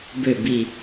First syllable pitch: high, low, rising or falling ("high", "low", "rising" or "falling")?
low